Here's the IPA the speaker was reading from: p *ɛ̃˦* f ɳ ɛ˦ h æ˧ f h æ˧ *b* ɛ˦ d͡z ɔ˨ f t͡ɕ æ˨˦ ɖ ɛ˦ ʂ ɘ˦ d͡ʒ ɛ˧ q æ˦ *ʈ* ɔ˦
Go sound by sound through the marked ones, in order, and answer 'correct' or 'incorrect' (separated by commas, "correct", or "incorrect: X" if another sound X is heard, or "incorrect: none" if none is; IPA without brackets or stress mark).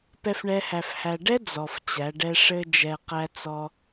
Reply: incorrect: ɛ˦, incorrect: ɖ, incorrect: t͡s